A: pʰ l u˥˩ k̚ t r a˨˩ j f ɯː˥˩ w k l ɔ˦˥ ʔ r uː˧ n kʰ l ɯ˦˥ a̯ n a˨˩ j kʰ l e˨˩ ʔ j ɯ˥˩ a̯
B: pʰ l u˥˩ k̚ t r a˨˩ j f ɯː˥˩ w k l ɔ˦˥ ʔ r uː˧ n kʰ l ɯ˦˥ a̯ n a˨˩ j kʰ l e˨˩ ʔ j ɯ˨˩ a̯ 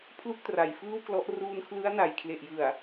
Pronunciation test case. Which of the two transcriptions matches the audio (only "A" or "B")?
B